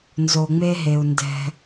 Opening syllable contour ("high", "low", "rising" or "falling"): low